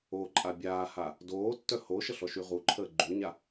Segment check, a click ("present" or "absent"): present